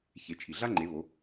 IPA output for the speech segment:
ç e˩˧ t͡ʃʰ i˩ ɮ a˥ ŋ͡ǃ e˩˧ β o˩˧

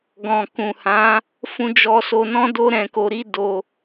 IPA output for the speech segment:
ɡ ɔ̃˨ k ũ˨ h ã˨˦ | f ũ˧ d͡ʒ ɔ˧ s o˧ n ɔ̃˦ d o˦ ɾ ɛ̃˧ k o˧ ɾ i˦ d o˧

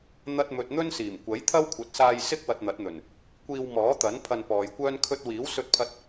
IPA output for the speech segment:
n̪ ɐ˧ t̚ m ɵ˨ t̚ n̪ ɵ˥ n s iː˨˩ m kʷ ɐ˨˥ j t̪ʰ ɐ˥ w kʷʰ ɐ˨˥ t̚ s aː˧ j s ɪ˥ k̚ w ɐ˨ t̚ n̪ ɐ˨˥ t̚ n̪ ɵ˨˩ n | kʷ iː˧ w m ɔː˨˥ t̪ ɐ˨˥ n pʰ ɐ˧ n p ɔː˨ j kʷ œː˥ n kʰ ɵ˧ t̚ w iː˨˥ w s ɵ˧ t̚ pʰ ɐ˧ t̚

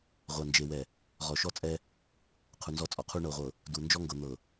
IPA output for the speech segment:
ʁʷ a˨ n d͡ʒ e˨ w ɛ˨ | ʁ ɔ˨ ʃ ɔ˦ t͡sʼ ɛ˦ | qʰ u˨ n z ɔ˦ t͡sʼ ɔ˨ qʰ u˦ ɳ ɤ˨ ʁʷ ɤ˨ | d u˨ n d͡ʒ ɔ˦ ŋ ɡ ɤ˨ n̪ ɤ˨

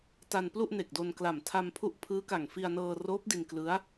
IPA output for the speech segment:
t a˧ n p l u˥˩ ʔ n e˨˩ k̚ d o˧ n k l a˨˩ m tʰ a˧ m pʰ u˥˩ ʔ pʰ ɯː˦˥ k a˨˩ ŋ f i˧ a̯ n ɤː˧ r oː˦˥ p̚ d i˧ n k l ɯ˦˥ a̯

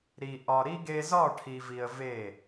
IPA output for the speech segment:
ɾ i˨ ʔ ɒ˨ ɾ i˦ ɡ e˦ z ɒ˦˨ ʈʰ i˨ v i˨ ə̯ v e˦˨

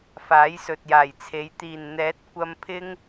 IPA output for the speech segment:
f aː˨˥ j s ɵ˨ t̚ j aː˨˩ j t͡sʰ e˨˧ j t̪ iː˨˩ n n̪ ɛː˨˥ t̚ kʷ ɐ˧ m pʰ ɪ˥ ŋ

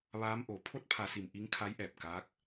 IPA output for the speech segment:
ʋ aː˧˥ m ʔ o˩˧ pʰ o˧˥ t̚ pʰ a˩˧ s i˩ m ʔ i˧˥ ŋ kʰ a˧˥ j ʔ ɛː˧˩ p̚ k aː˧˥ k̚

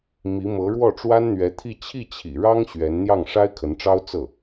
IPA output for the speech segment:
m i˧˥ m ɤ˧˥ ɻ w ɔ˥˩ ʈ͡ʂ w a˥ n n̪ ɥ ɛ˧˥ t̪ʰ i˥˧ t͡ɕʰ i˥˩ t͡ɕʰ ḭ˨˩ ɻ ɑ˥ ŋ ɕ ɥ ɛ˧˥ n n̪ j ɑ˥˩ ŋ ʂ a˥ ɪ̯ kʰ ə˧˥ n ʈ͡ʂ ɑ˥ ʊ̯ t͡s ɤ˥˩

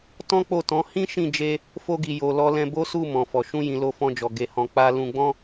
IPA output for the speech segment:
t ɔ̃˦ k͡p o˦˨ t ɔ̃˨˦ h ĩ˦ ʃ ĩ˦˨ d͡ʒ e˧ | f o˧ ɡ i˨ j o˨ l ɔ˧ l ɛ̃˧ b o˦ s u˦˨ m ɔ̃˨ f ɔ˨ ʃ ũ˧ j ĩ˨ l o˧ f ɔ̃˧ d͡ʒ ɔ˨ ɡ e˧ h ɔ̃˧ k͡p a˦ l ũ˧ ɡ͡b ɔ̃˦

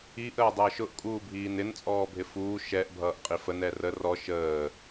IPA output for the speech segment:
i ʔ əː dˤ əː ʃ ʊ ʔ kʼ uː bʱ iː n ɪ n t͡sʼ ɔː bʱ ɪ f uː ʃ ɛ ʔ bʱ ʌː ʔ qʼ i f ə n ɛ r ə r ɔ ʃ əː

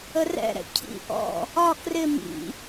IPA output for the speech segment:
ə r ɛ̰ ɾ ɛ̰ cʰ ḭ ʔ ɔ̰ | ɒ k r ɪ m ḭ

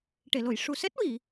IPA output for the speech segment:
ʈ e˨˩˨ l o˨˩˨ j ʂ u˨˩ s ɛ˦˥ t̚ w i˨˩˨

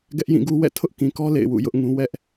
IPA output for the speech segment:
ɡ ɛ˦ ʔ j ĩ˦˨ ɡ u˦ w ɛ̰˦˨ tʰ ʊ˦ ʔ k ĩ˨ k ɔ˦ l ḛ˦˨ ɪ̯ w ṵ˦˨ j ʊ˦ ʔ ŋ ũ˦ w ɛ˦ ʔ

